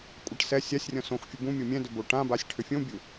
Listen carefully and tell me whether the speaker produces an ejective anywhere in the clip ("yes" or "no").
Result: yes